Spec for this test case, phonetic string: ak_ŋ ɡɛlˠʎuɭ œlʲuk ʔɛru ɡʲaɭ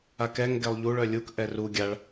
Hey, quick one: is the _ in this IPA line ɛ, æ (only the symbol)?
ɛ